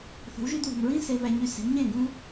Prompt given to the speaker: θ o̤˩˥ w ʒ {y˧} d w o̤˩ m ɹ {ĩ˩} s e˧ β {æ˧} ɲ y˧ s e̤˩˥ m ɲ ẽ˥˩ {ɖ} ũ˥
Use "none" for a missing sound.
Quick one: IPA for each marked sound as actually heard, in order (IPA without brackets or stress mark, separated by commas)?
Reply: y˧, ĩ˥, æ˧, ɡ